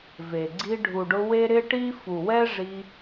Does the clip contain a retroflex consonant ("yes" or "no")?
yes